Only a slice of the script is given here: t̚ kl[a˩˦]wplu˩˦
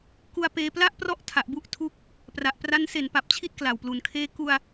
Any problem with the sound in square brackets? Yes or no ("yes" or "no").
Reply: yes